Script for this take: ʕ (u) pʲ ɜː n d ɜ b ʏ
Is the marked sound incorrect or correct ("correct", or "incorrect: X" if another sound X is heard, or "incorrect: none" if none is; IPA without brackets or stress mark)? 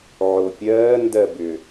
incorrect: o